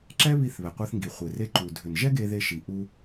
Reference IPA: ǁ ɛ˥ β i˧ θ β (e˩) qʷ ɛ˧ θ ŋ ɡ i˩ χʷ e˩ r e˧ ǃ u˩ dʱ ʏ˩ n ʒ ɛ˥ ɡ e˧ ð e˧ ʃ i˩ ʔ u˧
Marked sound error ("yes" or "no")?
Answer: yes